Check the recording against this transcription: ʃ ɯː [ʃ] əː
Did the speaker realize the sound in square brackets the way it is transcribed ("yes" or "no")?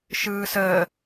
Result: no